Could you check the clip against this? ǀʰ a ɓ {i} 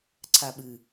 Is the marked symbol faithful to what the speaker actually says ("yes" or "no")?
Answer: no